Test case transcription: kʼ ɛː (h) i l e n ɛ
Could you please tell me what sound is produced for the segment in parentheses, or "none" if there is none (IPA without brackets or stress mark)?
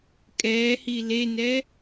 h